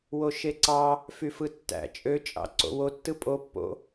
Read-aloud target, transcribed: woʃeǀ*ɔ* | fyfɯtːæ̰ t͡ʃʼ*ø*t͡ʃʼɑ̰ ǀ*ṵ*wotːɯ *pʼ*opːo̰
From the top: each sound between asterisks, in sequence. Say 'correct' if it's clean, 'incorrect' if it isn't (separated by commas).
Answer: incorrect, correct, incorrect, correct